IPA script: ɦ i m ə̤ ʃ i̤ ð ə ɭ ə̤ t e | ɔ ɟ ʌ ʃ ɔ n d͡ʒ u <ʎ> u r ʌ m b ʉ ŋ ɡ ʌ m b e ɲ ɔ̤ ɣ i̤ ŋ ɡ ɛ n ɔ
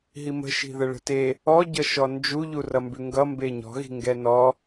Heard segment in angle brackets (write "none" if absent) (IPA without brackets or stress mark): ʎ